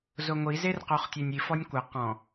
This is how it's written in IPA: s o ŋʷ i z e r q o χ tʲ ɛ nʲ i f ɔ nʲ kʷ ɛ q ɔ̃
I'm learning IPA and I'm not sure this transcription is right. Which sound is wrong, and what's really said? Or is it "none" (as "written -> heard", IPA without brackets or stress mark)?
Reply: s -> z